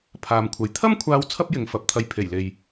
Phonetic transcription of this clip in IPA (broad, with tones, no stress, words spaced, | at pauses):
pʰaː˨mkʷʰɐ˨j t̪ʰɐ˥mkʷʰaː˧w t͡sʰɐ˥p̚jɪ˨˧ŋfɐ˨˥p̚t̪ʰɐ˧j pʰe˨˩jle˨j